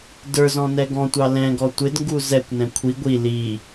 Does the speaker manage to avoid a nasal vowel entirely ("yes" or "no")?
no